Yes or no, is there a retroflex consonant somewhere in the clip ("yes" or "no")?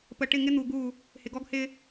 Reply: yes